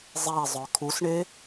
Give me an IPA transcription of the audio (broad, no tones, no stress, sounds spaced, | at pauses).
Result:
zˤ e zˤ œ kʰ u s ɳ e